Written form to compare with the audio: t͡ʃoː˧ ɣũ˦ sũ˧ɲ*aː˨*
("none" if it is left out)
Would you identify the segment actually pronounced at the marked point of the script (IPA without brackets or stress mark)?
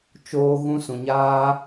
aː˦